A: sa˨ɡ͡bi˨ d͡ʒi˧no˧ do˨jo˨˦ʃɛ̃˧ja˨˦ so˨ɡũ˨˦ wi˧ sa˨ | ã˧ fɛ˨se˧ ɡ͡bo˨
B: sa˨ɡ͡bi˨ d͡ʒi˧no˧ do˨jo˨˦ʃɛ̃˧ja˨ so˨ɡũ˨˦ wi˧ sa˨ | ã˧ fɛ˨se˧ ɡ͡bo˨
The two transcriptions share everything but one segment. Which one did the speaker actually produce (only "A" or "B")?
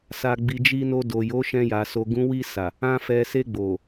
B